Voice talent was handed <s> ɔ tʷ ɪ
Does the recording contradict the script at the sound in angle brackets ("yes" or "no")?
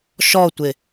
yes